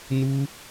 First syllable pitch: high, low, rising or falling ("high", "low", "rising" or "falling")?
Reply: high